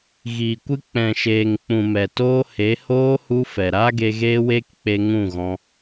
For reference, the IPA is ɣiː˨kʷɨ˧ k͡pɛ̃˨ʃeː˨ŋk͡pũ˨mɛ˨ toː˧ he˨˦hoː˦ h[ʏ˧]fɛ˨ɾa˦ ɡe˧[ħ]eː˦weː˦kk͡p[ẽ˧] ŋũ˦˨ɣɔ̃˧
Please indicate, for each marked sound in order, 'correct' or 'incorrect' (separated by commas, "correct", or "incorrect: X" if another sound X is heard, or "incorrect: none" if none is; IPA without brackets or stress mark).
incorrect: u˧, incorrect: ɣ, incorrect: e˧